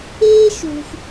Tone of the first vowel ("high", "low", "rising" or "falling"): high